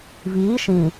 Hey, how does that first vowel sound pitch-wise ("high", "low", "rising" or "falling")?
rising